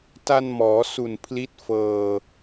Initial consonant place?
alveolar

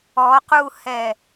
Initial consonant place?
uvular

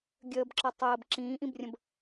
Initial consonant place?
velar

